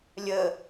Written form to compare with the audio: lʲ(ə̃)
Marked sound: incorrect: ə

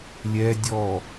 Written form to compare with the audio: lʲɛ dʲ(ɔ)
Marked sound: correct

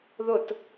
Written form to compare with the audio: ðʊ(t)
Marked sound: correct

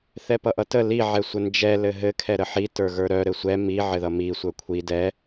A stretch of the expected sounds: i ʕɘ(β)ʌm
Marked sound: incorrect: ð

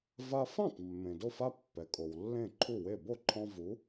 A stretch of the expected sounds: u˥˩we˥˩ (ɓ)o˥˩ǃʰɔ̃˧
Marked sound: incorrect: b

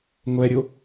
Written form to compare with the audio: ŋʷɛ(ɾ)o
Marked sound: incorrect: ɾʲ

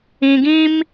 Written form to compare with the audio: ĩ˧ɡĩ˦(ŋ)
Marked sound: incorrect: m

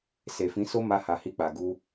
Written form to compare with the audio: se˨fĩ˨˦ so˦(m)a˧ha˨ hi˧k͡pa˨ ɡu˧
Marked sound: correct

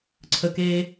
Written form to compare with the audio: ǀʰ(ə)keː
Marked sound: correct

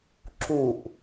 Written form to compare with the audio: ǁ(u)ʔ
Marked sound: correct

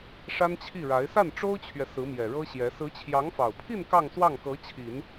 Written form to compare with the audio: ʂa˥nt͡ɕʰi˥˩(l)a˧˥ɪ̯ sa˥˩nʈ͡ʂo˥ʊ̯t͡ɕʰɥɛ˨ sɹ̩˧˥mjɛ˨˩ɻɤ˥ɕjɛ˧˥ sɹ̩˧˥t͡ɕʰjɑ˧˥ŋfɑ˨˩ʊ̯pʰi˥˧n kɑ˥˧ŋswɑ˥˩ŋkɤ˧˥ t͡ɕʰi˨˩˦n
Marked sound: incorrect: ɻ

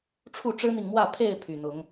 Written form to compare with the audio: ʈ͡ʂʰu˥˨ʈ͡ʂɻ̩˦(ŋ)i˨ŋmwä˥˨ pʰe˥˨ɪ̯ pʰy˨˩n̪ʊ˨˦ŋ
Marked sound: incorrect: n̪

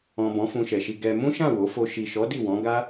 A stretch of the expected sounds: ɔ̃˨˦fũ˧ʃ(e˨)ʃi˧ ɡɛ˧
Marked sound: incorrect: ɛ˨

